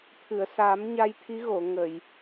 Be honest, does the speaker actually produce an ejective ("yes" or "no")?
no